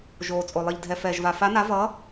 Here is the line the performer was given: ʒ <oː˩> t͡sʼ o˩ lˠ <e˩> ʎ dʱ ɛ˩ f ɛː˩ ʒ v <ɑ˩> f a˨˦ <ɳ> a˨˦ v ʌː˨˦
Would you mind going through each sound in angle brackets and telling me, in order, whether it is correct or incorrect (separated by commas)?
correct, incorrect, incorrect, incorrect